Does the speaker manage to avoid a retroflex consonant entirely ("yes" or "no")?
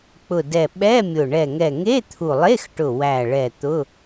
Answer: no